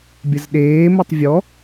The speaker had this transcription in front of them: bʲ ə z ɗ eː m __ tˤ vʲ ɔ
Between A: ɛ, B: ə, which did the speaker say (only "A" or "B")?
B